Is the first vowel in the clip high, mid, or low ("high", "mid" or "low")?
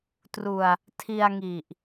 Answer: high